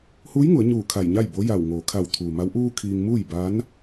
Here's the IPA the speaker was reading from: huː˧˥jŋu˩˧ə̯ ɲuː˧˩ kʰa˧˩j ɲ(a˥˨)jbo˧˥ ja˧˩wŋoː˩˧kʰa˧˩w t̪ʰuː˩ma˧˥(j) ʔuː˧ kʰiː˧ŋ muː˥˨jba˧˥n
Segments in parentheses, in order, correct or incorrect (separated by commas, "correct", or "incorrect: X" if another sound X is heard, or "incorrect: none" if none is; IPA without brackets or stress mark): correct, incorrect: w